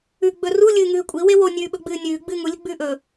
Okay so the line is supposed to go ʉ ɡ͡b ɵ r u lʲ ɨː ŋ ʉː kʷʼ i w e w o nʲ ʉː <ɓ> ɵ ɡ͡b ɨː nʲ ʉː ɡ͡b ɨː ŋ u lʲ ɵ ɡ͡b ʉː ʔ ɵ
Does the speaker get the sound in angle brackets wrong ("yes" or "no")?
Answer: no